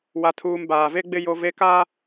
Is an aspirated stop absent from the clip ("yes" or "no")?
no